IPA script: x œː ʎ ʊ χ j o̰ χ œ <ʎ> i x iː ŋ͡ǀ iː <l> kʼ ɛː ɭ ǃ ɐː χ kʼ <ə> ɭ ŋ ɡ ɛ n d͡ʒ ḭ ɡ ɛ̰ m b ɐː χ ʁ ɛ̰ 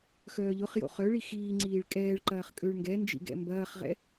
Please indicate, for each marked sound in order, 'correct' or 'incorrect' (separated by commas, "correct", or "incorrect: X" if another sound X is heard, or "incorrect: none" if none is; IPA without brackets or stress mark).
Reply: incorrect: ɭ, incorrect: ɭ, incorrect: ø